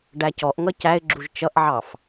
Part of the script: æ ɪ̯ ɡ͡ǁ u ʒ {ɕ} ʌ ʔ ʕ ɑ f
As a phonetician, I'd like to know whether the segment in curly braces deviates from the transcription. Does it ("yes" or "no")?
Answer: yes